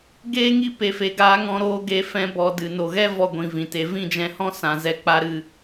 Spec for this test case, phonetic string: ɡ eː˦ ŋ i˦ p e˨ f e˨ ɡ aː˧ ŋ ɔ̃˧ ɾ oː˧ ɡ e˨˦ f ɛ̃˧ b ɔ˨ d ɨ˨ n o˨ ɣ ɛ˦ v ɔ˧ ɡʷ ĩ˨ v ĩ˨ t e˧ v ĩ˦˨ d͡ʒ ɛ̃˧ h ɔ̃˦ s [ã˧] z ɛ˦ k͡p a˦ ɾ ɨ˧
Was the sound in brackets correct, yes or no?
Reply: yes